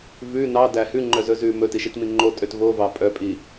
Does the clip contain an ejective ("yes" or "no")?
yes